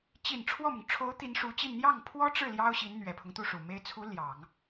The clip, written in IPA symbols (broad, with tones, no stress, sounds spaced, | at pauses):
t͡ɕ i˨˩ n ʈ͡ʂʰ w ɔ˥˩ m ʊ˩ ŋ ʈ͡ʂʰ o˧˥ ʊ̯ t̪ i˧˥ n ʂ u˧˥ t͡ɕ i˥˧ n n̪ j ɑ˥˩ ŋ pʰ w ɔ˥ ʈ͡ʂ ɻ̩˥˩ l j ɑ˥ ʊ̯ ɕ i˧˥ n n̪ ɥ ɛ˨˩ pʰ ʊ˦ ŋ t̪ u˥˩ ʂ u˨˩ m e˧˥ ɪ̯ t͡sʰ u˧˥ l j ɑ˨˩˦ ŋ